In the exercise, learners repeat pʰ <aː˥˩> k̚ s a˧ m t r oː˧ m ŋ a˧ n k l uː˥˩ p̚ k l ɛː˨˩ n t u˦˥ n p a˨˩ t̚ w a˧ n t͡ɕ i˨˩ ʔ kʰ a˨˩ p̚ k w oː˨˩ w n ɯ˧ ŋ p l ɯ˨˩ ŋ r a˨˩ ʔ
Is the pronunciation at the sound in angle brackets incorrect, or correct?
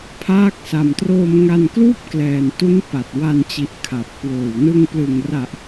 correct